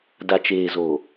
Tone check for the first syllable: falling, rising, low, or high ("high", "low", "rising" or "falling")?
low